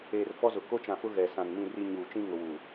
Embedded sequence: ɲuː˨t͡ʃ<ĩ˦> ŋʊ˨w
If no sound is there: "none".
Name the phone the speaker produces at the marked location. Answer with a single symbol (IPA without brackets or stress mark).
ĩ˦